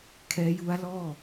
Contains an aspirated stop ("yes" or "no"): yes